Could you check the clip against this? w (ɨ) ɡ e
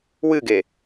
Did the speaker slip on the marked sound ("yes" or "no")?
no